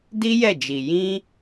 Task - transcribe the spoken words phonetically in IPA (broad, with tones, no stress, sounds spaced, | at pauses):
d i˦ j ɛ˦˨ d͡ʒ i˨ j ĩ˧